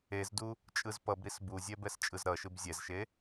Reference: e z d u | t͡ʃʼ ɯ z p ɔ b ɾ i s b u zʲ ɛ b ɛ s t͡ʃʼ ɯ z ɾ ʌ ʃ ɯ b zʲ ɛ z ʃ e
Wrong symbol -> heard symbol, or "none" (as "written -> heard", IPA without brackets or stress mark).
ɔ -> ʌ